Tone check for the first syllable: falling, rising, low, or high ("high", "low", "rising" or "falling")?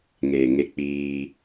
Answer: low